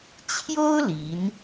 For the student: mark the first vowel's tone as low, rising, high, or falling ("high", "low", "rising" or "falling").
high